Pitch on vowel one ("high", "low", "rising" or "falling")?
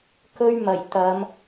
high